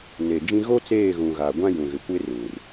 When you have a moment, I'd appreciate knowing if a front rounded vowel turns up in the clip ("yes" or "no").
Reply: no